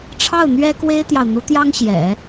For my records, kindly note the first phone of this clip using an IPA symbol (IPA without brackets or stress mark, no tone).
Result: ʈ͡ʂʰ